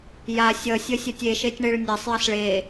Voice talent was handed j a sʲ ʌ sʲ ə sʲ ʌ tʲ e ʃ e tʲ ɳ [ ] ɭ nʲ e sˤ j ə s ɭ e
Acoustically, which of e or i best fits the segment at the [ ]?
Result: e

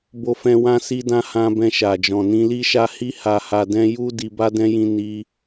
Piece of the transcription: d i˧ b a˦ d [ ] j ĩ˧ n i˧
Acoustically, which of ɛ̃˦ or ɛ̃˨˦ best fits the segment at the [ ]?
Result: ɛ̃˦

